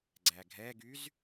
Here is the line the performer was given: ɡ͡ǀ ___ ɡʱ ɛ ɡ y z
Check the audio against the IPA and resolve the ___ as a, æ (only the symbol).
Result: æ